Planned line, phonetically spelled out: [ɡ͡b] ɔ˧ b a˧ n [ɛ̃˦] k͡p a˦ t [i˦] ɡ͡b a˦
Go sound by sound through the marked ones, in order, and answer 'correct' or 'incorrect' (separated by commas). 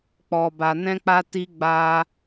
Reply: incorrect, correct, correct